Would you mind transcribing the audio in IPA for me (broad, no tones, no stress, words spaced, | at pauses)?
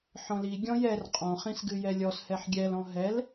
ħɔ̃li ɡʲɔ̃jɛr qʼɔ̃χĩsɡɨ jɛlʲɔshɛħ ɡʲɛlɔ̃ ɦɛl